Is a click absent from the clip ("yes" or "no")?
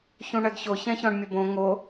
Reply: yes